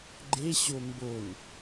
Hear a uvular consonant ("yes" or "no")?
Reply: no